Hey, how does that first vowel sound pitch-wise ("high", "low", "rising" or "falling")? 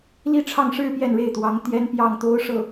falling